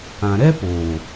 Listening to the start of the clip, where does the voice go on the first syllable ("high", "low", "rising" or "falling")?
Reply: low